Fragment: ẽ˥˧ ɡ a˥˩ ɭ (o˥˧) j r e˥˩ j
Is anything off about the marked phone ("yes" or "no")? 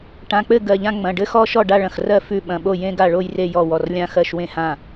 no